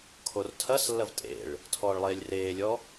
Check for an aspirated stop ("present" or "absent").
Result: present